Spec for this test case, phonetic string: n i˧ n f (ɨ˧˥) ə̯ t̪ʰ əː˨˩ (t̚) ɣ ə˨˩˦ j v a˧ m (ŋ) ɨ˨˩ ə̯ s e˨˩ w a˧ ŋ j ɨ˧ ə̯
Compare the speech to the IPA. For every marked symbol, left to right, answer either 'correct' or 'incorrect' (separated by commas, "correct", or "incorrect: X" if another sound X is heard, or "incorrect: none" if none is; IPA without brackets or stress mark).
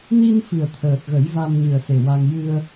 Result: incorrect: ɨ˨˩, correct, incorrect: ɲ